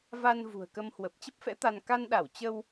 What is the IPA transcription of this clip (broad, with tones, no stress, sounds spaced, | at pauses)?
v a˧ n v ṳ˨˩ ə̯ k ə˧ m h w ə˨˩ p̚ t͡ɕ ə˦˥ p̚ f ɛ̰˧˥ t̪ a˧ n k a˧ n ɗ a˧˩ w t͡ɕ ə˧ w